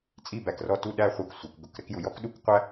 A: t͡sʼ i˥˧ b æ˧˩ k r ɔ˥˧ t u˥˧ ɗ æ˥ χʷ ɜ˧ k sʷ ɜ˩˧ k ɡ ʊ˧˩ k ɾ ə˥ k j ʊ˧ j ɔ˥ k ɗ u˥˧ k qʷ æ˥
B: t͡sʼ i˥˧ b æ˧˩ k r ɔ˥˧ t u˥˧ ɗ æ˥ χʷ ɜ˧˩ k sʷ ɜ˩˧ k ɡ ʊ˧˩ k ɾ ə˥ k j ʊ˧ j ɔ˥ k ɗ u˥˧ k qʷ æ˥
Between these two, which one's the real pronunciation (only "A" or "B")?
A